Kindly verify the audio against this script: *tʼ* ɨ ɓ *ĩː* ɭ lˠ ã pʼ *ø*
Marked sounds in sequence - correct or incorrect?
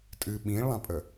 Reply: correct, correct, incorrect: ə

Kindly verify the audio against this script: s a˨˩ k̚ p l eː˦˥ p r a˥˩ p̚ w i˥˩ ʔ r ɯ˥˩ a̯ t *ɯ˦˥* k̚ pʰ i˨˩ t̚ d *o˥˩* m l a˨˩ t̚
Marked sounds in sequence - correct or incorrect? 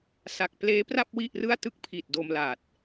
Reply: incorrect: ɯ˥˩, incorrect: o˧

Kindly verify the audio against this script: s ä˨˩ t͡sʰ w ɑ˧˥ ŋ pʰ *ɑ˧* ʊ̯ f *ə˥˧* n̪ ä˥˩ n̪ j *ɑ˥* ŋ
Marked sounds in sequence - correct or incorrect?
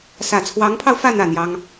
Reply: correct, incorrect: ä˥˧, correct

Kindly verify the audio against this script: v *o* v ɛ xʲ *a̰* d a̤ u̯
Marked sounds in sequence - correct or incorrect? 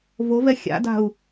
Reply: correct, correct

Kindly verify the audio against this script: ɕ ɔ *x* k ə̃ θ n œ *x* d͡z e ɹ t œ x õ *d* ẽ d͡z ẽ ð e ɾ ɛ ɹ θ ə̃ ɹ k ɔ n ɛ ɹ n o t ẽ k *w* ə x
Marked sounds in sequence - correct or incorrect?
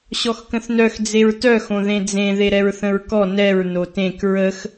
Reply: correct, correct, incorrect: ð, incorrect: ɹ

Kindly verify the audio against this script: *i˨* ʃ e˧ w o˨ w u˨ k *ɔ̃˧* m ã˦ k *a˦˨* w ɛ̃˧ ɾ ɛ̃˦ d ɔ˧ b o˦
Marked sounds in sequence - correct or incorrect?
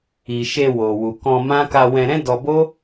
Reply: correct, correct, incorrect: a˧

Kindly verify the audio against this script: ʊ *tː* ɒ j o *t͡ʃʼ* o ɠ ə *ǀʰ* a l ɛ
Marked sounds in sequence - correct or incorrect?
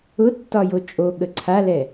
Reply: correct, correct, correct

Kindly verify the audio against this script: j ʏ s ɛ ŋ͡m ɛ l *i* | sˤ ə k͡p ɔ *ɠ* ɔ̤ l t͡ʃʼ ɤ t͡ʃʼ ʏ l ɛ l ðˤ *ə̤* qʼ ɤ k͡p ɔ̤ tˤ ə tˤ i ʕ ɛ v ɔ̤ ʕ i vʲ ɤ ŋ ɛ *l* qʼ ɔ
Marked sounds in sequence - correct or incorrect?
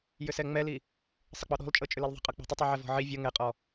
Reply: correct, incorrect: ɗ, correct, incorrect: none

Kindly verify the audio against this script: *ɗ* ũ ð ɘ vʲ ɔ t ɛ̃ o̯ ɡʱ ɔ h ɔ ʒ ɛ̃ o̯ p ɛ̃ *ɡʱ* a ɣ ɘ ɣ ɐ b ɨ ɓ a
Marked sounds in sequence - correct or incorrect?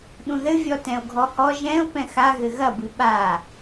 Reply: correct, incorrect: x

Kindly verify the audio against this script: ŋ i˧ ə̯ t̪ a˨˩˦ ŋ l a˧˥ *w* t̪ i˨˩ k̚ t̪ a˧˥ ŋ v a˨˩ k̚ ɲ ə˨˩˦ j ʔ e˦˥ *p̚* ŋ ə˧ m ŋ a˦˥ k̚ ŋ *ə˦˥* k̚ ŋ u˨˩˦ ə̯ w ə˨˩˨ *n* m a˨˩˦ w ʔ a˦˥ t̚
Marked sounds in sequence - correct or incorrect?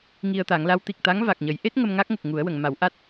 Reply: correct, incorrect: t̚, incorrect: ə˨˩, incorrect: ŋ

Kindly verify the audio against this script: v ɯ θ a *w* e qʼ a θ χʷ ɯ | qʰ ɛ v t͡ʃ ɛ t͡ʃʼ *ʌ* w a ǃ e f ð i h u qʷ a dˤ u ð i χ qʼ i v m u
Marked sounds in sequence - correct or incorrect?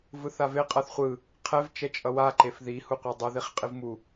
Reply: incorrect: v, correct

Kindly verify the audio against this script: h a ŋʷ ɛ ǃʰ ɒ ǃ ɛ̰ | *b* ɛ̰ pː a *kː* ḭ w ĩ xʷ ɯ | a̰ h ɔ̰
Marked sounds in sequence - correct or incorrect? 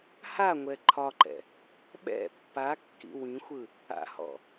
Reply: incorrect: ɓ, correct

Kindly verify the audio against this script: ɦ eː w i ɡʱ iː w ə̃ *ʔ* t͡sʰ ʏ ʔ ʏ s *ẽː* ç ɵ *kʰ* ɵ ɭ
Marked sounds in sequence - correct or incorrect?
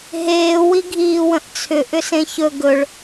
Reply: correct, incorrect: ẽ, incorrect: ɡ

